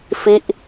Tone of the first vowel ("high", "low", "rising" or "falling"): falling